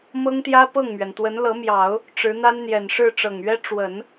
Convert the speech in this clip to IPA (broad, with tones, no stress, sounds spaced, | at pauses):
m ɤ˥ ŋ t̪ j ä˥ p ɤ˥˩ ŋ m ɥ ɛ˩ n t̪ w ə˧˥ n l ɤ˧˥ m j ɑ˨˩˦ ʊ̯ | ʈ͡ʂ ɻ̩˧˥ n̪ a˥ n n̪ j ɛ˨˩ n ʂ ɻ̩˥˩ ʈ͡ʂ ɤ˨˩ ŋ ɥ ɛ˥ ʈ͡ʂ w ə˨˩˦ n